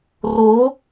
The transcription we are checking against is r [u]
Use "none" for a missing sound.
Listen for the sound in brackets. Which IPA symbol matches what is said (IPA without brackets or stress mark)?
o